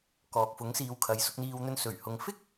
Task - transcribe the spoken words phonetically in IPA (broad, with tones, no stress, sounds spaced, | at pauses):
k ɔː˨ k̚ f ʊ˨˥ ŋ s iː˨ w kʰ ɐ˨˧ j s ʊ˧ k̚ n̪ iː˧ w n̪ ɵ˧ n s ɵ˨˩ ɥ h ʊ˨˧ ŋ f ɪ˥ k̚